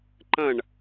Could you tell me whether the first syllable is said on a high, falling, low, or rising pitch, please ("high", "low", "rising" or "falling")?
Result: falling